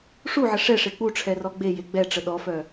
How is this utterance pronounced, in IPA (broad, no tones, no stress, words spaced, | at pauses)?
ʂuʕə ʂɛʂe k͡puʈ͡ʂʰɛrɔ ɡ͡beje ɡ͡bɛʈ͡ʂə ɗɔfœ